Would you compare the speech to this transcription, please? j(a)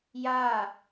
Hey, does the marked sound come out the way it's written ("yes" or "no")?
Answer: yes